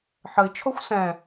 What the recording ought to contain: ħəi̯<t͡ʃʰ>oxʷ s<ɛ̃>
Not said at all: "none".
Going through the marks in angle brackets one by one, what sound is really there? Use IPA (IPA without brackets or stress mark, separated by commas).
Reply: t͡ʃʰ, ɛ̃